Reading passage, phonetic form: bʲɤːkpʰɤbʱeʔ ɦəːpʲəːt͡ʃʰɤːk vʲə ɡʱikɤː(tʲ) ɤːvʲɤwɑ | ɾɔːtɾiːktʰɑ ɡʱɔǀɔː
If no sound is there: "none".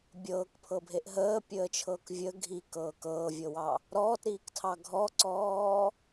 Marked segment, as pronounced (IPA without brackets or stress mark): k